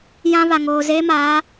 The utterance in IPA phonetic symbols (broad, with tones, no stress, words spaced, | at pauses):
jã˦βa˨ ŋoː˨zeː˦ maː˨˦